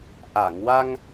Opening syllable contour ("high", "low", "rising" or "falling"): low